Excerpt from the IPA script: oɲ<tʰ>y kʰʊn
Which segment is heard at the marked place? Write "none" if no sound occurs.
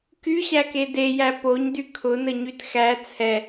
d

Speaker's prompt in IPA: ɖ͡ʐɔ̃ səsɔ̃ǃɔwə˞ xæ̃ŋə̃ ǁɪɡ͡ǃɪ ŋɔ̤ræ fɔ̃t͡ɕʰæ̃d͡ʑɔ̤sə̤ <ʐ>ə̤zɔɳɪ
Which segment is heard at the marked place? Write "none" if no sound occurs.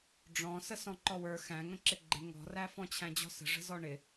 ʐ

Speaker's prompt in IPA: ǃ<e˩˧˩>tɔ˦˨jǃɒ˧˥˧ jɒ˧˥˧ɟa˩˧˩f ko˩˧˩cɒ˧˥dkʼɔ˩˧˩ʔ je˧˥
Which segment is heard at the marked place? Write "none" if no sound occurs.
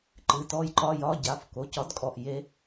ɨ˩˧˩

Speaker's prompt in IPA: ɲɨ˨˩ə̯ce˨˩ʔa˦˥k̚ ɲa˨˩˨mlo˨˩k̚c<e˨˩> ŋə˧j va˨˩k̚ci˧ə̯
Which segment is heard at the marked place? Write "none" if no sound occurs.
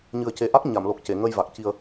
e˨˩˨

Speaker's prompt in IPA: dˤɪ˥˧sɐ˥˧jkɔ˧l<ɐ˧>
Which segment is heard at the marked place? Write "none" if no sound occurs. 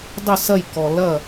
ɐ˥˧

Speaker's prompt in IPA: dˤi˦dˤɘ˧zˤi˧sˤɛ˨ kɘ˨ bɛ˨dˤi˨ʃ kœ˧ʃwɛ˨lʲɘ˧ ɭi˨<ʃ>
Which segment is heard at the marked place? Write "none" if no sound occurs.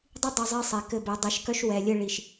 ʃ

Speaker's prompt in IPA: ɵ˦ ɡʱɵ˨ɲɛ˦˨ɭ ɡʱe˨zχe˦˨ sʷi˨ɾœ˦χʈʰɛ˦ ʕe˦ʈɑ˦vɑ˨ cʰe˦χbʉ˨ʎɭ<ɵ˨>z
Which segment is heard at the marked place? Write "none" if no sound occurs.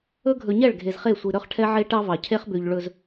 ɵ˨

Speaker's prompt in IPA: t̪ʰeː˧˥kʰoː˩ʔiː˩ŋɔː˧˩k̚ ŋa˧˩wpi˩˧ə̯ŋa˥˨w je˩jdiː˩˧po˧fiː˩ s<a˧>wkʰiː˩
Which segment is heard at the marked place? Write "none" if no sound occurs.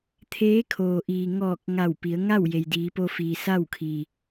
a˥˨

